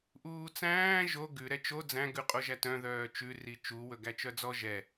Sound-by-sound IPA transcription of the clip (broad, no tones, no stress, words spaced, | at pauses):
ʔuːt͡sæ̃ː ʒo ɡʉ ɾɛt͡ʃo d͡zæ̃ ɡʉqʼoʒætœ̃ ðœːt͡ʃʉ rit͡ʃu wɵɡæt͡ʃœd͡zɔ ʒɛ